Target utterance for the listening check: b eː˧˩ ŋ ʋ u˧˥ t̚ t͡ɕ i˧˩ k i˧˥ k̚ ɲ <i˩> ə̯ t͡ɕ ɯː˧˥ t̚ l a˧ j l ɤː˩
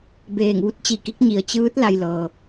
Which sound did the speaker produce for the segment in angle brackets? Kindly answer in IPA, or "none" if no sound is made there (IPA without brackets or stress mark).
i˩